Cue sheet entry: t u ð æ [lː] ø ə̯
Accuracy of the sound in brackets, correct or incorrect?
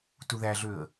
incorrect